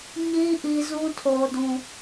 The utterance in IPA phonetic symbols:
ɲi˦ ʔi˦zũ˦ tʰo˨dũ˨

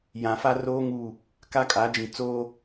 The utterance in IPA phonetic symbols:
jã˨fa˦roː˦ ŋuː˦˨ | ka˦kʼa˨˦d͡ʒĩ˨ t͡soː˦

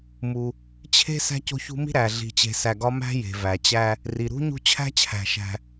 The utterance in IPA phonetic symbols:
mu˨ | t͡ɕʰe̤˥ sæ̤˦co̤˦çṳ˦mi̤˥ ɾæ˩ ɮi̤˨t͡ɕe̤˨sæ˨ɡɒ˦ mæ̤˦ je̤˩ væ˩t͡ɕæ˦ | ri˩ɾṳ˦ ɲṳ˦t͡ɕʰæ̤˥t͡ɕʰæ̤˩ʃæ̤˨

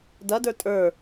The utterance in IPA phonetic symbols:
dɐdə˞ tʼə˞

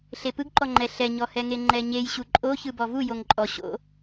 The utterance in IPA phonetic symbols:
ɬepɯɡǃɔŋ͡ǃɛ ɬɛɲɔhɛŋe ŋ͡ǃɛɲej ɕuǃʼo çɯbɔvu joŋǃʼɔ ɕo̰

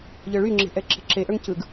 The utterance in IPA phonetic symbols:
ʎə˞ɭyŋ͡ǁe̤ ʔɛǁe̤ǁeʔə˞ŋ cɯɡ

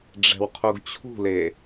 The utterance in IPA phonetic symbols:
ɖ͡ʐɛ̤wqʰuɡt͡ɕʰṳle

